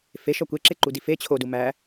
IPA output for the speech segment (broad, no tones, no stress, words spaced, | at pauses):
feʃɒ kʷeǁeǃudi fe t͡ɕʰodu mæ